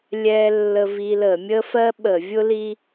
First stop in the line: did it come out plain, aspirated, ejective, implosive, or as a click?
implosive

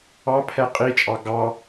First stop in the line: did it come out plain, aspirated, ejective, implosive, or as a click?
aspirated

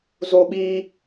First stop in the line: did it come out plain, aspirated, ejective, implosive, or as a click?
implosive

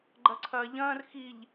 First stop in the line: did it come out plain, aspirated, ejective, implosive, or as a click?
click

